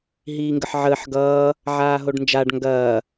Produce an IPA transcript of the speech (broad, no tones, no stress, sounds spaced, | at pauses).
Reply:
ɦ iː ŋ ɡ ə ħ ʕ əː ħ ɡ ʌː | ʕ aː ɦ o ɖ n d͡ʒ a ɖ ŋ ɡ ɐː